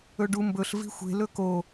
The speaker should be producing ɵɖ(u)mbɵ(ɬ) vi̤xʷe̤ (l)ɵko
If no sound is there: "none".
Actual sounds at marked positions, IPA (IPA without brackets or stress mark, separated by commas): u, ɬ, l